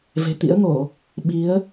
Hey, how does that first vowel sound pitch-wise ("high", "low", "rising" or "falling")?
low